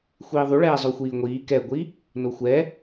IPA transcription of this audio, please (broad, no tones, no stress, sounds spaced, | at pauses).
xʷ iː ðˤ u ɭ ɛː zˤ o xʷ iː ŋʷ iː k ɛ ɡʷ i | n o xʷ ɛ